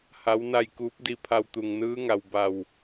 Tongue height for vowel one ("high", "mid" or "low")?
low